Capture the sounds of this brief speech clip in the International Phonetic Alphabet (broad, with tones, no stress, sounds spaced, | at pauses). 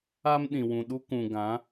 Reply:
a˦ m ɗ ĩ˨ w ũ˨ ɗ u˦ k ũ˨ ɡ ã˨˦